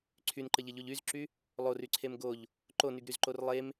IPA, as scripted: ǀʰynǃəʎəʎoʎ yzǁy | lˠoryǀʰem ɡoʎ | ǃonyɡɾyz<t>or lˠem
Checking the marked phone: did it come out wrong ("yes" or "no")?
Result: yes